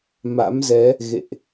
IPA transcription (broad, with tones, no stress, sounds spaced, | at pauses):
m a̰˧˥ m z ɛ˨˦ | ɣ ḛ˧˨ ʔ